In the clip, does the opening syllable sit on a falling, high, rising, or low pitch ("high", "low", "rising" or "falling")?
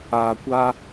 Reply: low